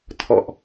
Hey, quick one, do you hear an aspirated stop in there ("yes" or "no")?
yes